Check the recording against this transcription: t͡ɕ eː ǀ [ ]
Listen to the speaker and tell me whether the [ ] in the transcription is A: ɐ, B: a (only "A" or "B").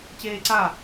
B